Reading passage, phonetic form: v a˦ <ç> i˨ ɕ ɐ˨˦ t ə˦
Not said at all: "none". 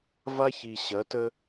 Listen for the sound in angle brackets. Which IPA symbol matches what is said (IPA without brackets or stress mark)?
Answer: ç